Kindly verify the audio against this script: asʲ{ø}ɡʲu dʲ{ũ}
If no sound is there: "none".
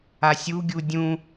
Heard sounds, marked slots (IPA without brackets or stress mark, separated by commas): u, ũ